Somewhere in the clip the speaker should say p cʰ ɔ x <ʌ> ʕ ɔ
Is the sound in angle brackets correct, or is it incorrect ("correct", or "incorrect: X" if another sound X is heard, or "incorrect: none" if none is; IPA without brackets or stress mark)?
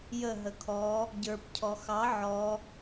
incorrect: ɑ